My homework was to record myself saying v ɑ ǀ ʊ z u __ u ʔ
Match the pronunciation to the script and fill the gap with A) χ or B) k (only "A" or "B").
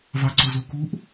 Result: B